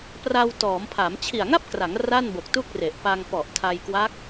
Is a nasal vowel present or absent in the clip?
absent